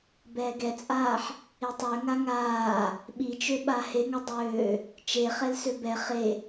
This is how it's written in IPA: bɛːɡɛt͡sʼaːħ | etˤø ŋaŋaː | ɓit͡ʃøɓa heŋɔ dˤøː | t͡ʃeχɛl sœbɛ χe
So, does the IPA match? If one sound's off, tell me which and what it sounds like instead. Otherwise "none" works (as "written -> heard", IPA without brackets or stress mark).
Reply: œ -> ø